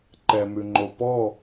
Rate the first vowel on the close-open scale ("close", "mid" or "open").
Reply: mid